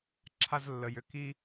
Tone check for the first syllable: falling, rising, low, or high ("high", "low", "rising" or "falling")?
high